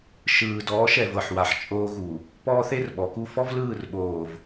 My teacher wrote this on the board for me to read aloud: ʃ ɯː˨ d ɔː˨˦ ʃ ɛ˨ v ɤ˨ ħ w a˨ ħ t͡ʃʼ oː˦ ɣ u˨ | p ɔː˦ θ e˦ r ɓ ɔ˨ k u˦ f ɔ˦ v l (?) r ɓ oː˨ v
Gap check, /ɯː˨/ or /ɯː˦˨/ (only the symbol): ɯː˦˨